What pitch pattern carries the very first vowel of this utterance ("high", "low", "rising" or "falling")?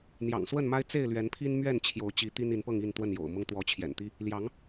low